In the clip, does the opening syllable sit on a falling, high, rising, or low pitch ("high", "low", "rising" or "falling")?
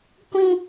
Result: high